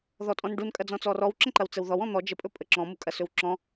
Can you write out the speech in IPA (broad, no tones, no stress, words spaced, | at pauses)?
ðɔtʼɔ̃nɖun kʼɐd͡zɔ̃t͡sɔrɔw ǁə̃ǃɐwt͡səwðɔw ɔ̃n̪ɔ d͡ʒə pʼɵpʼəǁɔ̃ mukʼɐsɵwǁɔ̃